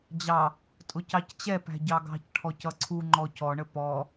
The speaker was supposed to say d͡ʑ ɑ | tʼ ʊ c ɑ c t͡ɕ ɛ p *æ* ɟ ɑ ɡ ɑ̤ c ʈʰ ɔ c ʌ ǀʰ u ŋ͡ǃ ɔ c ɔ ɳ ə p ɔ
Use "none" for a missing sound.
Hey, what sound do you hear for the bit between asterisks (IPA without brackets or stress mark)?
æ̤